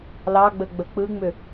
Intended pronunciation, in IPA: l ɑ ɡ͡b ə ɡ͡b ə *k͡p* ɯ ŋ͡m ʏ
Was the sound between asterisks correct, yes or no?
yes